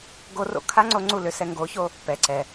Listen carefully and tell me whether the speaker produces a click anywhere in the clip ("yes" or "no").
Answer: yes